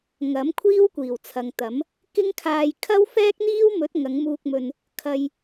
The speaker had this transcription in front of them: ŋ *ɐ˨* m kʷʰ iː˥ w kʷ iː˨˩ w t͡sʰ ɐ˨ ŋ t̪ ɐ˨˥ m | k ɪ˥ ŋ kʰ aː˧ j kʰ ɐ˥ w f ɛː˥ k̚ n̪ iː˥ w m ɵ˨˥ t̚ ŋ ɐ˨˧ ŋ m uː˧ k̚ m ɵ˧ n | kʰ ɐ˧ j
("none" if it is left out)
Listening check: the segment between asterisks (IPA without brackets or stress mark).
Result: ɐ˨˥